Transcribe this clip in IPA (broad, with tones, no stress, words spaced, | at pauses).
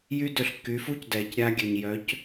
jy˥dø˧ɬ kːy˩˥fu˥c dɛ˩cɾʲa˧ ɡʲø˩ɲjœ˩˥c